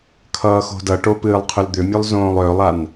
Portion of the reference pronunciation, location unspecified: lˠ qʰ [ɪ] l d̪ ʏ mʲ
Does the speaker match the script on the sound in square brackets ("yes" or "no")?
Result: no